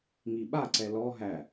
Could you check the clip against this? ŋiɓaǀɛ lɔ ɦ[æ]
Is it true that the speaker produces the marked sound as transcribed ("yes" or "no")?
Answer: yes